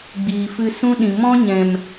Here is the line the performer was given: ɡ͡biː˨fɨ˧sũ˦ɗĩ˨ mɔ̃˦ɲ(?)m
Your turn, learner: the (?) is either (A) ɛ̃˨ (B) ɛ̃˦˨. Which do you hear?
A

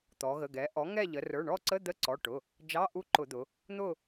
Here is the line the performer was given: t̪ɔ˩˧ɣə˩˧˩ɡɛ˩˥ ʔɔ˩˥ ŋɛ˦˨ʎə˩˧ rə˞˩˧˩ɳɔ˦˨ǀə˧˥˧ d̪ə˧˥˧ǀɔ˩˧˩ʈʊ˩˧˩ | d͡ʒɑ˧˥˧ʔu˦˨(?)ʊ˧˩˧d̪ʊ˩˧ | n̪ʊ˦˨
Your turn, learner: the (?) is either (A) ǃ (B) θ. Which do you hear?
A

